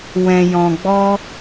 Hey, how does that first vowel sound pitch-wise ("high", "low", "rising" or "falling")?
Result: low